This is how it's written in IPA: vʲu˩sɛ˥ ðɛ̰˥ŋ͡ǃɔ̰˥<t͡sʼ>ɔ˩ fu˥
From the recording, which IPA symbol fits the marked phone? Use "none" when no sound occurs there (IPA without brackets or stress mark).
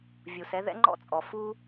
t͡sʼ